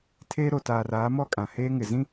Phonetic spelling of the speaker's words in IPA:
tʰ eː˦ ɾ o˨ t aː˨ r aː˨˦ m ɔ˦ kʼ ã˨ h eː˦ ŋ ɪ˨ z ĩ˦

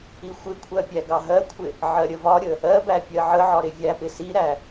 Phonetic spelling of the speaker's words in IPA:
i xʷ ɪ kʷʰ ɜ pʲ æ ɡ ɑ ɦ ɜ kʷʰ ɪ | ʕ ɜ ɾʲ ə v ɒ ɾʲ ə | ɜ b æ pʲ ɜ ʕ ə ʕ ɒ ɾ ɪ vʲ æ p ɪ s i ɾ æ

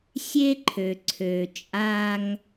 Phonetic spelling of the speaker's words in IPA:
sʲ e˦ ǃʰ ø˨ ǀʰ ø˨ t͡ʃʼ a˦ ŋ

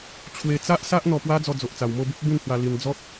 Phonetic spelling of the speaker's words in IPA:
t͡ɕʰ w e˧ t͡s a˦ ʔ s a˦ ʔ n̪ ɔ˧ p w a˦ d͡z ɔ˧ d͡z o˨ ʔ t͡s a˨˩ w m o˥˧ b u˦ p̚ b ĩ˥˧ n h w a˧ l i˧ n d͡z ɔ˦ t̚

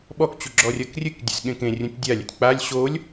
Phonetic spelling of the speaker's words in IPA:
ɓ ɔ k t͡ɕ u ɡ͡ǁ ɔ rʲ ɐ k rʲ ɨ k dʲ ɛ̰ s ɠ ẽ k ẽ rʲ ũ tʲ dʲ a lʲ ḛ tʲ k͡p a lʲ ɕ o lʲ

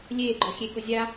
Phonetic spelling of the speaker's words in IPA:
lʲ eː ɡ͡ǃ ɔ xʲ e k ʊ zʲ a

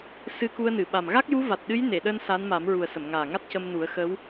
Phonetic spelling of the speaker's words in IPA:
s ɨ˧ k u˧ ə̯ n ɨ˨˩˨ ɓ a˨˩ m ɣ a˦˥ k̚ j u˧˥ v a˨˩ t̚ ɗ ɨ˧˥ j n e˨˩˨ ɗ əː˧ n s a˧˥ n m a˨˩˦ m ɹ u˨˩ ə̯ s ə˨˩˨ m ŋ aː˨˩ ŋ a˦˥ t̚ c ə˧ m n u˨˩˦ ə̯ x ə˧˥ w

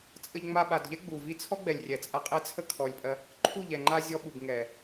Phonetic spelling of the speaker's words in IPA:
t͡sʼ ə˧ ʎ ŋ͡m a˧ ɓ a˨ d ʎ ɛ˦ ɡ͡b u˨ v i˧ t͡sʰ ɔ˦ ɡ͡b ɛ˨ lʲ rʲ ɛ˨ t͡sʼ a˧ qʼ ɛ˦ t͡sʰ ə˦ kʰ ɔ˨ lʲ pʼ ɜ˧ | ǃʰ u˦˨ ʎ ɛ˨ ŋ͡ǃ a˧ zʲ ɔ˧ ɓ u˨ b ŋ ɛ˨

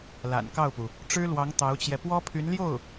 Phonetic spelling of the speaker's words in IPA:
l a̰˨˩ n k ɑ˥˩ ʊ̯ p u˩ | ʈ͡ʂ ɻ̩˥ l w ɑ˧˥ ŋ t̪ ɑ˧˥ ʊ̯ t͡ɕ j ɛ˧ p w ɔ˥ pʰ y˧˥ n l j o˥˩ ʊ̯

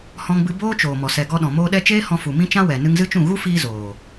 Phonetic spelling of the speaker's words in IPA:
h ɔ̃˧ ŋ b ɨ˧ b oː˦ t͡ʃ oː˨ m ɔ˨ s ɛ˨ ɡ ɔ˧ ɗ ɔ̃˨ m oː˧ ɗ ɛ˦ t͡ʃ eː˦ h ɔ̃˧ f u˨ m ĩ˦ t͡ʃ ã˦ w ɛ˨ n ɨ˧ ŋ z ɨ˦ t͡ʃ ũ˦˨ ɣ u˦ f iː˧ z oː˨

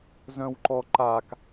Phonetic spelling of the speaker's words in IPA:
z œ̃ w ǃ ɔ ǃ a k

